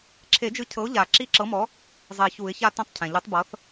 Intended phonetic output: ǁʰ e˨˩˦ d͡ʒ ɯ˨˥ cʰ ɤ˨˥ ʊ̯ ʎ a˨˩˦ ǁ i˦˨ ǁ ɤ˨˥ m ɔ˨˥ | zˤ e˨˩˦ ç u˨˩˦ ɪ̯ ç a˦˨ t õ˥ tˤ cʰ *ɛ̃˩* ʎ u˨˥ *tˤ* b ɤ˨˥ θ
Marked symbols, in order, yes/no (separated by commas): yes, yes